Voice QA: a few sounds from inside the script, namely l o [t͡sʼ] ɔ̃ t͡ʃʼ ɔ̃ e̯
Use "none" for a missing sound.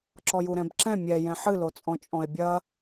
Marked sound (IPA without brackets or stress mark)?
t͡sʼ